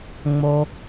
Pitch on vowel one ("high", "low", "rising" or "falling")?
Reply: low